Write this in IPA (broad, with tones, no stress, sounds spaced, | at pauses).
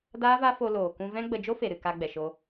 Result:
d aː˦ v a˦ f o˧ l oː˨ k ũ˧ v ɛ̃˦ ɡ͡b ə˧ d͡ʒ o˦ f e˨ ɾ ɨ˨ k a˧ ɡ͡b ɛ˨ ʃ o˧